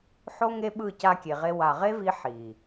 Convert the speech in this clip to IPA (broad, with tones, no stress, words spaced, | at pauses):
ħo˦ŋe˦ɓɯ˦˨ ca˧kʲe˨ʁe˧ wa˨ʁe˦vi˧ ħi˨